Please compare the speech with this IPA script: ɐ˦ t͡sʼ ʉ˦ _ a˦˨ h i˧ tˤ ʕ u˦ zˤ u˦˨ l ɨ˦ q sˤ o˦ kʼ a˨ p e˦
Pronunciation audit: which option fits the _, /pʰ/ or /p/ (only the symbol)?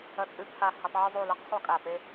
pʰ